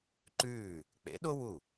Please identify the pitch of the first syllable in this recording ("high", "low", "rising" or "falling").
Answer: falling